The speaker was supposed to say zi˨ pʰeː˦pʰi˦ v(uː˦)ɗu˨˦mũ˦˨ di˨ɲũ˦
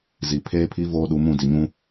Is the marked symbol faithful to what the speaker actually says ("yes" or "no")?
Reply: no